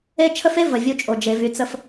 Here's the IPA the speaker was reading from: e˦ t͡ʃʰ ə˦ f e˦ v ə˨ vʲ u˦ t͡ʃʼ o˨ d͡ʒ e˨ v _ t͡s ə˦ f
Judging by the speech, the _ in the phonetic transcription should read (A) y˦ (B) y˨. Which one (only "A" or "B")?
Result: B